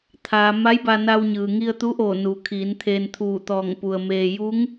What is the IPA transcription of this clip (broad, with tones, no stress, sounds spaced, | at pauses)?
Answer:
t̪ʰ aː˩ m a˧˥ j b a˧ n a˧ w ɲ ɯː˩ ŋ i˧ ə̯ t̪ u˧˥ ʔ oː˧˩ n u˩˧ kʰ iː˩˧ n t̪ʰ eː˧ n t̪ʰ uː˧˩ t̪ ɔː˧˩ ŋ p u˩ ə̯ m eː˧ j u˧˥ ŋ